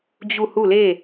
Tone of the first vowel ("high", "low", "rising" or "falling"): falling